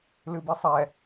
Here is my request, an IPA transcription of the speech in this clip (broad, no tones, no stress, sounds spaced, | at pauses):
l ɨ b i sˤ ɛ